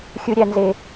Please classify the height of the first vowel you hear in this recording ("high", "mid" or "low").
high